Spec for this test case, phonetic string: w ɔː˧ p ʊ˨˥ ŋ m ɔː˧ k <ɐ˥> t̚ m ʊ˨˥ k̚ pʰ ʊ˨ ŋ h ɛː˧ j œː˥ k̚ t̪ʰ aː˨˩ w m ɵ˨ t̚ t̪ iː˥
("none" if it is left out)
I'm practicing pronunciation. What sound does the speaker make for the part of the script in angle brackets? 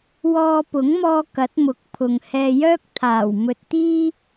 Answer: ɐ˨˥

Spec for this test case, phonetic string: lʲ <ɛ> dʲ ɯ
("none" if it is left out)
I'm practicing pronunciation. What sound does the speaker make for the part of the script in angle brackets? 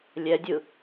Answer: ɛ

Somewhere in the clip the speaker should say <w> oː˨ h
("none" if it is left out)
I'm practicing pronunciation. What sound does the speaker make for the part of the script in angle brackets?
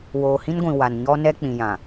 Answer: w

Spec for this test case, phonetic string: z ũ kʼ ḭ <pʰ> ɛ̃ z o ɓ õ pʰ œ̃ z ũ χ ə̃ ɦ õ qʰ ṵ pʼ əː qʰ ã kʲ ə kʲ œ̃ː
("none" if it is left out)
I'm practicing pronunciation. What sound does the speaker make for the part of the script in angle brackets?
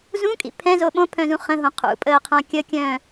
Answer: pʰ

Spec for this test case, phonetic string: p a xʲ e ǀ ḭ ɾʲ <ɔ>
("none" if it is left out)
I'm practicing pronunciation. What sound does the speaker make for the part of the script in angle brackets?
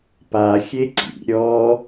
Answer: ɔ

